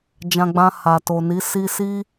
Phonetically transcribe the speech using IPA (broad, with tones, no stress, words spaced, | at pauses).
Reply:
d͡ʒã˧ɡ͡bã˧ha˨ to˨ ni˨˦si˦ si˦